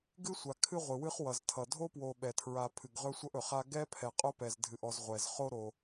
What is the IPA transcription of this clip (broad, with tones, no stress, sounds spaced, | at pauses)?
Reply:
ɡ ɨ˥ sʷ a˩ kʰ ɨ˦ ʁʷ ɨ˩ w ɨ˥ χ w ʌ˩ z tʰ ʌ˩ dʱ o˥ p w o˨ ɓ ɛ˩ tʰ ɹ a˨ pʰ ɨ˩ ɡ ʁ ɵ˦ sʷ ʌ˦ ʔ ɵ˩ χ a˦ ɡ ɛ˥ pʰ ɛ˨ qʼ o˥ p ɛ˨ z dʱ ɨ˨ ʔ ɔ˨ z ʁʷ ɛ˩ z χ o˦ ɾ o˨